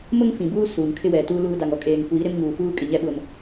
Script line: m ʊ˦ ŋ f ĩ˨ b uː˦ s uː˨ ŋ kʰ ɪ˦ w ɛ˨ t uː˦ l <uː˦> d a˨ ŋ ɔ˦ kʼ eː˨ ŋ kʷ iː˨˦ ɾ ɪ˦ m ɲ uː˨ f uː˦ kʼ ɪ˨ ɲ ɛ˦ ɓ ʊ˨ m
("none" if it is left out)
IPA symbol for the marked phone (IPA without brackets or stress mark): uː˦